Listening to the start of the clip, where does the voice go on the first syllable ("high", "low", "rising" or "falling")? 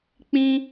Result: high